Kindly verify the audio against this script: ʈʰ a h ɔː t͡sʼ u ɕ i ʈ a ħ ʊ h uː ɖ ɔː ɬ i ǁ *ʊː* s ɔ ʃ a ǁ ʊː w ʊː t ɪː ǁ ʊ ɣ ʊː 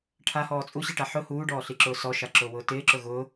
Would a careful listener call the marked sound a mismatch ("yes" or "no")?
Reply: no